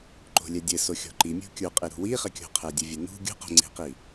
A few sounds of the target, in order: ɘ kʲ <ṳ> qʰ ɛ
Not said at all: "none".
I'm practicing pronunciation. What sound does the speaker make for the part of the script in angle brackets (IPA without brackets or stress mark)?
o̤